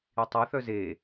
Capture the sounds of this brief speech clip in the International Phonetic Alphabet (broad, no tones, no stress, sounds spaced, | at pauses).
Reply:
i tˤ ɤ θ œ z e